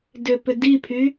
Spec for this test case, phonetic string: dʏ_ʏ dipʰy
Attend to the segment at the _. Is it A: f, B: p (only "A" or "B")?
B